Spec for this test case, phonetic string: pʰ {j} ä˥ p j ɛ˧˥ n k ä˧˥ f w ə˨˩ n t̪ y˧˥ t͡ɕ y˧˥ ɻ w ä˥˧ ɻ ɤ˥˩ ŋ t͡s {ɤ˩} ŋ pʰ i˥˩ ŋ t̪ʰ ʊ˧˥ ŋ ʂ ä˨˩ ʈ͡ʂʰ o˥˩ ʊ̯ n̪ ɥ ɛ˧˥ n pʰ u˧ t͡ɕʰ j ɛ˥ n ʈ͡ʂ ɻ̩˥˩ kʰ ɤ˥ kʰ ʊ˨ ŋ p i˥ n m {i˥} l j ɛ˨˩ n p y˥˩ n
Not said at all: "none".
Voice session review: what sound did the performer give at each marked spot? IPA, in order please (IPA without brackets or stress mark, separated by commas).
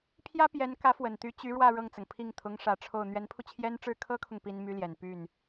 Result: j, ɤ˩, y˥